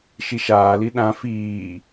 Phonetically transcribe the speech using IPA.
ʃiʃaːli ɗã fiː

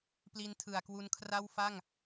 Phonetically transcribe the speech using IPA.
pli˦˥ntʰɯ˨˩a̯kwu˧nkʰra˥˩w fa˥˩ŋ

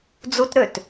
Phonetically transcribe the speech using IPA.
d͡zutɾøt

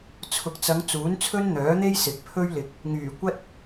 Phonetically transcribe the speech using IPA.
t͡sʰʊ˨k̚t͡sɐ˨˧ŋ t͡suː˨˥nt͡sʰɵ˥nn̪œː˨˥n̪e˥j sɪ˨k̚pʰɵ˥ɥlɪ˨k̚ | ŋyː˨˩kʷɐ˥t̚

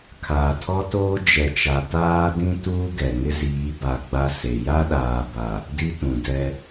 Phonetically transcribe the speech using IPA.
kʰaː˨tʰɔ˦toː˦ d͡ʒɛ˨t͡ʃa˨ taː˦dĩ˦ tuː˦ɡɛ˨ ŋɪ˦ziː˨˦ba˨ ɡ͡ba˦ se˨ ja˦ɗaː˨ba˨ | di˦tũ˨dɛ˦

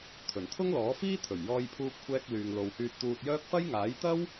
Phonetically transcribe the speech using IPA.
t̪ʰɵ˨˩nt̪ʰʊ˥ŋlɔː˨˥ fiː˥t̪ʰɵ˨˩ɥ jɔː˧jpʰuː˧p̚kʷʰɛː˧k̚lyː˨ŋ lo˨whyː˧t̚t̪uː˧t̚jœː˥k̚ fɐ˥j ŋaː˨˥jt̪ɐ˥w

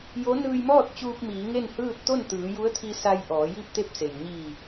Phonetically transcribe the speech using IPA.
jo˧˥ nɯː˧jmɔː˥˨t̚t͡ɕuː˧p̚ miː˩˧ŋe˥˨n hɯː˥˨t̚ t̪o˥˨nt̪ɯː˩˧ju˧˥ə̯t̪ʰi˧ sa˧j ʔɔː˩˧ji˥˨p̚t̪e˥˨p̚se˩j ɲi˧˩

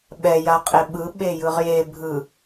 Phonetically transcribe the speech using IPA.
ɓɛja qʼeɓɯ ɓejɯʁje bʱɯ

